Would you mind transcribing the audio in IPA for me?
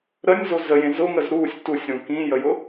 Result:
ɾ ə nʲ z o z ə j ẽ z ʊ ŋ ə z ɾ u sʲ t u sʲ ɾ ũ k ĩ j ə j ʊ

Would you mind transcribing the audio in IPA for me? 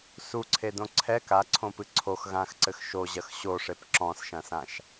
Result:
s u ǀʰ e d õ ǀʰ ɛ k a ǀʰ õ p ɨ ǀʰ o x ɣ ã x ǀ ɘ x ʃ o ʑ ɐ x ɕ o ʂ e p ǁ ɔ̃ s ʃ ɐ̃ s ã ʃ

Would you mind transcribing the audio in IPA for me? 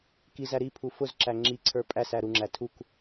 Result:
k i z æ ɾ i pʰ u f ʊ z ǁ æ ŋ͡ǁ i ǀʰ ə˞ pʼ æ s æ ɾ u ŋ͡ǁ æ tʰ u k

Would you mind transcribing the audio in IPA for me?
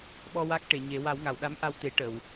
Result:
ɓ ɔ˧ w a˦˥ k̚ ʈ e˨˩˨ ɲ e˨˩˦ w a˨˩˦ w ŋ a˨˩˨ w ɗ a˧˥ m ʔ a˧ w t̪ e˨˩˦ ʈ ə˨˩˨ w

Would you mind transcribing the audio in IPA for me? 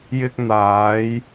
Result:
j ɪ˧ k̚ n̪ aː˨˧ j

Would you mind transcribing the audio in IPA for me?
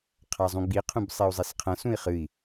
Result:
qʰ a zˤ ũ ɡ͡b i qʰ ũ b sˤ i u̯ zˤ e s qʰ ɐ̃ s ũ i̯ χ ɨ i̯

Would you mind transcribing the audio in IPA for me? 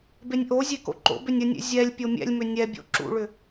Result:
b e nʲ ʔ o zʲ e k o̰ ǃ o̰ b ʏ nʲ ə nʲ ḛ zʲ ɛ lʲ pʲ o mʲ ɛ̰ lʲ m ʏ nʲ ɛ bʲ o̰ ǁ ṵ ɭ ʏ

